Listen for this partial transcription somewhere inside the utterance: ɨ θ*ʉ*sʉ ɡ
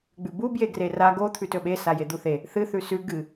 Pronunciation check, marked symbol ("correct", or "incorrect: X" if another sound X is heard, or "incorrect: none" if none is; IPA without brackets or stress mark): correct